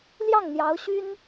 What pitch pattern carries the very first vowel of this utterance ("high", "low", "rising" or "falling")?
falling